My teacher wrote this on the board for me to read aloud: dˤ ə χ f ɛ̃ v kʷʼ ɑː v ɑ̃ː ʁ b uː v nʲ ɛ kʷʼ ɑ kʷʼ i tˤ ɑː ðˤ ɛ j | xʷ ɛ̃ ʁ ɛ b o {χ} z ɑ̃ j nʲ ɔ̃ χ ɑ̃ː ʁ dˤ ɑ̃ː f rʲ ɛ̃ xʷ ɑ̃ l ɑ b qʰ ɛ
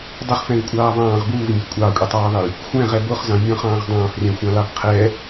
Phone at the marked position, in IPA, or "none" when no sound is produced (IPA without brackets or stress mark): χ